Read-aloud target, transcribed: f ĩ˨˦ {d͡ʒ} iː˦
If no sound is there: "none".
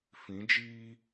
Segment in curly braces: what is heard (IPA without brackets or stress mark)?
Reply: d͡ʒ